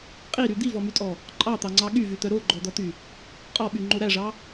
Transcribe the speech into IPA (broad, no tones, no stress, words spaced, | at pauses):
qʼiɾy d̪ivɔmytʼɔ | ǃʼɑt̪ɑŋ͡ǀɑ ɠyvyt̪œ ɾoɡ͡ǃɔd̪ɔt̪y | qʼɔɓyŋ͡ǃo ɾæʐɑ